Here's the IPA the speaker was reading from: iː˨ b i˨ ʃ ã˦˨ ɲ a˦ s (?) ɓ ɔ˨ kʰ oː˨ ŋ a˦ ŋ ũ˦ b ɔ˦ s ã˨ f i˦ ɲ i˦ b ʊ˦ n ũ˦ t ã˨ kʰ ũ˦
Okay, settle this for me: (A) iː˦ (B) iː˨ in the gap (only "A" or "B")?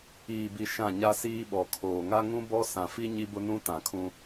A